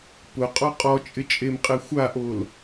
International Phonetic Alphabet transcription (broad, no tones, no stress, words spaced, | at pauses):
pʊqʼɔ qʼɔt͡ʃʼɪt͡ʃʼemqʼe xʷaʔol